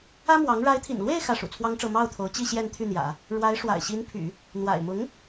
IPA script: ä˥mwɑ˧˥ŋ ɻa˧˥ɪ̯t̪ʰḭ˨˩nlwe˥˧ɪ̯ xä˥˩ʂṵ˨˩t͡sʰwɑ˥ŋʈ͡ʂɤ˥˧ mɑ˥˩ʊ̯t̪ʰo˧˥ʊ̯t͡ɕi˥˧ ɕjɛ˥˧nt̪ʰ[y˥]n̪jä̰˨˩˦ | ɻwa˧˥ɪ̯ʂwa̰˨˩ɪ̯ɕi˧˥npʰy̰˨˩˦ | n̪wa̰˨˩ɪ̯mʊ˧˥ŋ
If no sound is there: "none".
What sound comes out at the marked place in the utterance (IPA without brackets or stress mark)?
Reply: y˥˩